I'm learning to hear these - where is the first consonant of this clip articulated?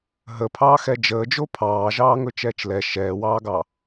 throat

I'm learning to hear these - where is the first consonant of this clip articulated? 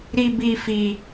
tongue tip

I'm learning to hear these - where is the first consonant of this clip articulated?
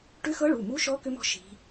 retroflex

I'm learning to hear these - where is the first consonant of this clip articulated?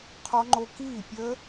uvula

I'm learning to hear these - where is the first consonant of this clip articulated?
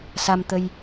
tongue tip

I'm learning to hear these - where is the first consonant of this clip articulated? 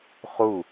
uvula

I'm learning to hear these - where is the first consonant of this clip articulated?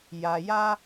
palate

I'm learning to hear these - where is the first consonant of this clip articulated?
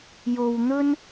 palate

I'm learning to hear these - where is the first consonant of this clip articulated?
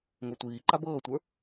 velum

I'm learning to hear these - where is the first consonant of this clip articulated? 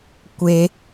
velum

